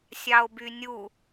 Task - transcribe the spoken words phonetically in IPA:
sʲɑo̯bynʲu

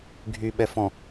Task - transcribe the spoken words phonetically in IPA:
ɡʱy ɓɛfɔ̃

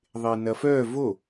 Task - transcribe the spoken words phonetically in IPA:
ðˤenɐfœ vo

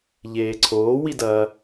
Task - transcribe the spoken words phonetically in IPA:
ʎeːǀʰoː widɐ

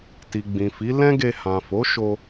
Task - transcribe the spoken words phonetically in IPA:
ti˨ɡ͡bĩ˨fi˨˦ lɛ̃˦ɡe˧hã˨ fo˨˦ʃo˧

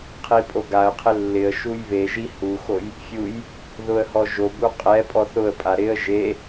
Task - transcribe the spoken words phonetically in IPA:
qʰipʼoɡaə̯qʰɪ lːɪə̯ ʃujβeʒi huxoj | fʲuj | ðʊə̯hɔʒobu qʼɛpʼɔθ ʊə̯pʼa ɾɪə̯ ʒe

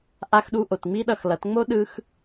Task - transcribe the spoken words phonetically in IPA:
ʔa˧xɗu˧ ʔo˨tŋ͡mi˦ ɗʌ˧xlʌ˨˦t ŋ͡mo˦ɗɯ˧x

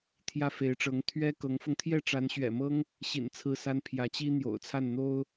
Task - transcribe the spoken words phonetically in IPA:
t̪ʰjä˥˩fe˧˥ɪ̯ʈ͡ʂɤ˧˥ŋ t̪ʰɥɛ˥ kɤ˧˥ŋfɤ˧ŋ t̪ʰjɛ˥˩ʈ͡ʂa˧˥nɕɥɛ̰˨˩mɤ˥ŋ | ɕḭ˨˩n t͡sʰɹ̩˥˩sa˥n pʰjä˧˥t͡ɕi˥ n̪jo̰˨˩ʊ̯t͡sʰa˥˩n n̪o˥ʊ̯

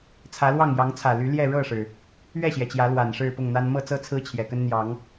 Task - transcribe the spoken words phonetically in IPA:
t͡sʰä˨˦lwɑ˥˨ŋ jɑ˨˦ŋt͡sʰä˨˩ly˨˦ ljɛ˥˨ ɻɤ˥˨ʂɻ̩˩ | ɥɛ˥˨ɕjɛ˩t͡ɕjä˨˦ lwa˨˩n ʂɻ̩˥˨pʊ˥˨ŋn̪a˦n mɤ˥˨t͡sɤ˦ t͡sʰɹ̩˦t͡ɕʰjɛ˨˩kə˦n n̪jɑ˨˦ŋ

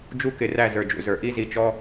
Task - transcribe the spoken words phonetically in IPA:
d͡ʒu˦kɪ˨ræ˦˨ zə˞˨d͡ʒṵ˨zə˞˨ ʔi˦zi˨t͡ʃɔ˦

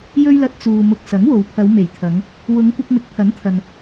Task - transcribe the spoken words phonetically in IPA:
jɵ˥ɥlɐ˧t̚ t͡suː˨ mʊ˨k̚ sɐ˨˥ŋwo˨wpʰɐ˨˧w me˨˩jt̪ʰɐ˨˧ŋ | wʊ˨˧ŋkʷɪ˧k̚ mɪ˨k̚pʰɐ˨˥nt̪ʰɐ˨n

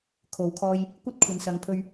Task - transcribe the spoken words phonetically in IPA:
kʰo˨˧wkʰɔː˧j | kʷɐ˥t̚kʷʰɐ˨nsɐ˨ŋpʰɵ˧ɥ

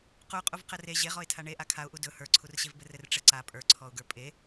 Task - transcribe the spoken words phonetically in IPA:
quqʼuv qɘre ʑeʁɔɪ̯tʰa ɳe ʔakʰaʊ̯ʔu dɵ hə˞ǀʰurɕevbɘ rɘrʈ͡ʂɘǀa pʼə˞ǀʰɔʊ̯ɡə˞ pʼe

